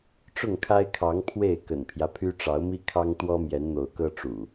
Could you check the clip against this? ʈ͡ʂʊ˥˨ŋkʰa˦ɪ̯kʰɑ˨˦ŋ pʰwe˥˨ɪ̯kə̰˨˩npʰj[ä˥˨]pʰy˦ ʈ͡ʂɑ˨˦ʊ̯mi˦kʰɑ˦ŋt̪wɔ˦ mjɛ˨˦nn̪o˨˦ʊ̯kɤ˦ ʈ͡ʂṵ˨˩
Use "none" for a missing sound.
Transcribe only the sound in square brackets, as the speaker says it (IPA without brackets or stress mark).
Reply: ä˦